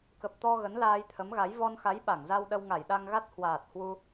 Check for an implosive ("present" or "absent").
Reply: present